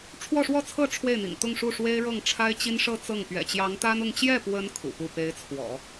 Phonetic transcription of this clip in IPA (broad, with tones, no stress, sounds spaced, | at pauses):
ʈ͡ʂʰ w ɔ˥˧ ʂ w ɔ˥˧ t͡sʰ ɤ˥˧ ʈ͡ʂʰ w e˥˩ ɪ̯ n̪ ḭ˨˩ ŋ t̪ ʊ˥˧ ŋ ʂ u˥˩ ʂ w e˥ ɪ̯ ɻ ɤ˥˩ ŋ ʈ͡ʂʰ a˥ ɪ̯ t͡ɕ i˥ n ʂ ɤ˥˧ t͡s ɤ˥˩ ŋ p ɥ ɛ̰˨˩ t͡ɕ j ɑ˧˥ ŋ t̪ a˥ n ʊ˥˧ ŋ t͡ɕ j ɛ˥˩ p w ə˧˥ n kʰ ṵ˨˩ p u˥˩ p e˧˥ ɪ̯ t͡sʰ w ɔ̰˨˩˦